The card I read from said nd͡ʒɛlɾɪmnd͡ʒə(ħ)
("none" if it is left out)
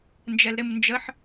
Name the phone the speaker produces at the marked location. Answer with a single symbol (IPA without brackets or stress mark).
ħ